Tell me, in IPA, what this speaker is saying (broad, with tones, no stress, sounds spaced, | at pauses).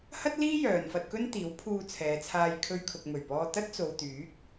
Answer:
h ɐ˥ t̚ l iː˥ j œː˨ n f ɐ˧ t̚ k ɵ˥ n t̪ iː˨˥ w pʰ uː˧ t͡sʰ ɛː˨˧ t͡sʰ aː˧ j kʰ ɵ˧ ɥ kʰ ʊ˨ k̚ m ɵ˨˩ ɥ p ɔː˧ t̪ ɐ˥ t̚ t͡s o˨ w t̪ yː˨˥ k̚